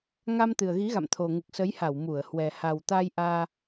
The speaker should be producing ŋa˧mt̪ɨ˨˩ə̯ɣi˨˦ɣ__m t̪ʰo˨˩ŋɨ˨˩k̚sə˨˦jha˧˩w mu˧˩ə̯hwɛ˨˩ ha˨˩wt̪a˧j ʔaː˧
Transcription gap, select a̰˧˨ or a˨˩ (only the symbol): a̰˧˨